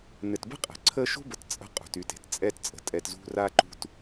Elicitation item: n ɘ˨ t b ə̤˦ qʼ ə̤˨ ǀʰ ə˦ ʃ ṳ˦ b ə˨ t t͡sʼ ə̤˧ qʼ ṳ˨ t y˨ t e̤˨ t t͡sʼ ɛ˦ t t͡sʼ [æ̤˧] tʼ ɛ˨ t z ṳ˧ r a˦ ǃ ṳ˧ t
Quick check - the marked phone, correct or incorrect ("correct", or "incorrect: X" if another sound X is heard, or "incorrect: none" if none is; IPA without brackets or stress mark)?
incorrect: ə̤˧